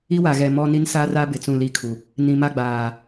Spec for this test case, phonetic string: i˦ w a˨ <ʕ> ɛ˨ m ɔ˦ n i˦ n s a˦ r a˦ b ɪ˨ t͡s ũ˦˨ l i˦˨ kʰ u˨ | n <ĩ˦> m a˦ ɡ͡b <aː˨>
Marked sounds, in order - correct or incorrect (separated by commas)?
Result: incorrect, incorrect, correct